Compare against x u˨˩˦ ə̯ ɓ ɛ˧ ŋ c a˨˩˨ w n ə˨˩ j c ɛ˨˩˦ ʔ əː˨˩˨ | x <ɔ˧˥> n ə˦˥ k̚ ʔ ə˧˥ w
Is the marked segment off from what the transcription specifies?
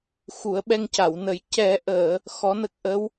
no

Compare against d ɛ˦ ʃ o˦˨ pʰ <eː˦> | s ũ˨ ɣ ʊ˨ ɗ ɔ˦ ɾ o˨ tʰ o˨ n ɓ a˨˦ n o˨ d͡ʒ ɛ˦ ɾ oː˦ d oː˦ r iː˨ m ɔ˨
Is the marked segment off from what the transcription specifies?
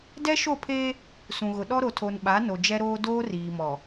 no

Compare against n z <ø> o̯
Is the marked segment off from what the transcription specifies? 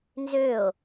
no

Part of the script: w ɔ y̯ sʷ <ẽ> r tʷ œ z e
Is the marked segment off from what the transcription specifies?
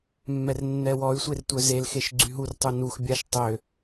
yes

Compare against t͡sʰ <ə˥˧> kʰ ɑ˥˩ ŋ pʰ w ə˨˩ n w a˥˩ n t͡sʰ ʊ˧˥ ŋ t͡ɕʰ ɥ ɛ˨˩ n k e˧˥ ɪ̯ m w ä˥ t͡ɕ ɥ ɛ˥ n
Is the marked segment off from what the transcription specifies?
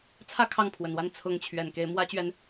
yes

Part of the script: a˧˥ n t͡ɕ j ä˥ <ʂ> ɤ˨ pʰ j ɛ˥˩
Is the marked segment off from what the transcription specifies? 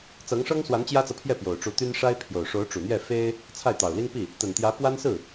yes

